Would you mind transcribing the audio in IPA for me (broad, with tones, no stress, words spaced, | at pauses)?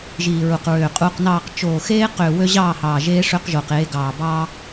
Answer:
ʒiː˨ɹu˨qɹøː˨ qʼuː˨qnɑː˨qt͡ʃoː˨ xeː˦qøː˨ wø˦ʑɑː˦˨hɑː˨ ʒeː˦ʂø˦qʒo˨q e˨˦ ɡɑː˨bɑ˦